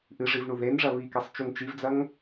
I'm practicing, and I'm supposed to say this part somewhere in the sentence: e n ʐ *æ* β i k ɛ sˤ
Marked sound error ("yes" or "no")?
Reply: yes